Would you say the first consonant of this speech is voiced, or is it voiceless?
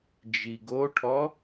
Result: voiced